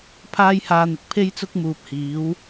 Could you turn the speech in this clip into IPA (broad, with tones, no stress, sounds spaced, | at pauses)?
pʰ aː˥ j h aː˧ n̪ ɪ˨ k̚ pʰ e˥ j t͡s ʊ˥ k̚ m uː˨ p̚ h iː˨˥ w